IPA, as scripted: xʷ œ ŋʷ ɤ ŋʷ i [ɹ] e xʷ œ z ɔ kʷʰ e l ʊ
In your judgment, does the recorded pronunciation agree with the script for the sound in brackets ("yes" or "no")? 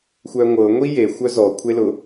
no